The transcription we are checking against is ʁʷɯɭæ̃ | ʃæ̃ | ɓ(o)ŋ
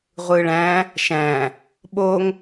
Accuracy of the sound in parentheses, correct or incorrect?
correct